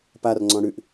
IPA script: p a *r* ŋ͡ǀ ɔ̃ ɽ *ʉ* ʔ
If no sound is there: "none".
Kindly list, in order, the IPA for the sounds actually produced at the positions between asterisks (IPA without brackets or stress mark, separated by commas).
r, ʉ